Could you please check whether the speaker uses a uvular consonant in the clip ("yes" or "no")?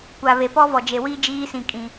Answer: no